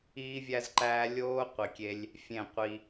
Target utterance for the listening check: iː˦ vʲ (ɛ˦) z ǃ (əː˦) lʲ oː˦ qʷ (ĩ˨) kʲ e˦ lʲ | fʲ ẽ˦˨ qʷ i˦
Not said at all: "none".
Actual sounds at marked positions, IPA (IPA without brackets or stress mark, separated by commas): æ˦, æː˦, i˨